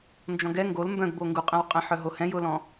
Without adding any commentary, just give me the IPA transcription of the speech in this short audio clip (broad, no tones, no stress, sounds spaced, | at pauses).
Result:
n d͡ʒ ɔ̃ ɡ ɛ ŋ ɡ o l m b œ̃ ɡ b o ŋ ɡ u qʼ ɛ̃ w qʼ ɛ̃ ħ œ ɦ o h ɛ̃ j ʊ l ɔ̃